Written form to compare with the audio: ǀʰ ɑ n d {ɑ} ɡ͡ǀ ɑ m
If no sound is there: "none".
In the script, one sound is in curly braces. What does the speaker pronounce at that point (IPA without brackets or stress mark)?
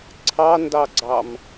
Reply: ɑ